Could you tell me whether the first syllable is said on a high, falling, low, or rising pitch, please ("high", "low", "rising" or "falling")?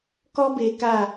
high